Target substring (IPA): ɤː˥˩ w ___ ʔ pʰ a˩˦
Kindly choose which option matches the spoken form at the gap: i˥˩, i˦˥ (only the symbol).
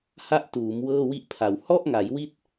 i˥˩